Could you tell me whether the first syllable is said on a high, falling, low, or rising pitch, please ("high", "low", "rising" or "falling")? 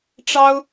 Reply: high